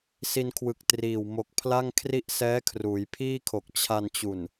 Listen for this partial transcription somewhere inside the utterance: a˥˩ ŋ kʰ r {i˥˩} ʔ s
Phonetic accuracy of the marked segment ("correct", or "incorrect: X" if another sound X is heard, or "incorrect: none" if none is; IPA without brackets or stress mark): correct